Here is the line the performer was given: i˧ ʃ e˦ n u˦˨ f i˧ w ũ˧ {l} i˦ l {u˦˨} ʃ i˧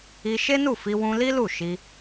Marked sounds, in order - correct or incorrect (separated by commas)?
correct, correct